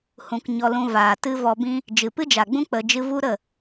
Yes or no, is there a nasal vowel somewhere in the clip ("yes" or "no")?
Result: yes